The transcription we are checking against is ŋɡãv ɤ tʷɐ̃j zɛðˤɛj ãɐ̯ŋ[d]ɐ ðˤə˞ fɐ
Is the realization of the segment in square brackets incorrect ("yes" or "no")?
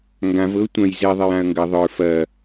yes